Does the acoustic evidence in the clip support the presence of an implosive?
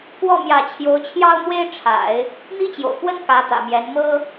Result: no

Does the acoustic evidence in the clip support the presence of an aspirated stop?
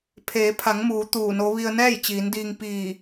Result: yes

